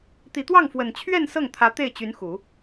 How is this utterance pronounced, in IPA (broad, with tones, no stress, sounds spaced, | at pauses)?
t̪ i˨˩ t̪ w ɑ˥˩ ŋ f w ə˨˩ n t͡ɕʰ ɥ ɛ˥˧ n s ɤ˥˩ ŋ t̪ʰ ä˧˥ t̪ e˥˩ ɪ̯ t͡ɕ y˧˥ n x u˨˩˦